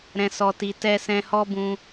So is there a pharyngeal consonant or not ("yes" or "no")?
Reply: no